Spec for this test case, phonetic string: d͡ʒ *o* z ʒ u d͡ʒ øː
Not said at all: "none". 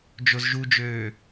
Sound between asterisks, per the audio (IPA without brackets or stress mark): o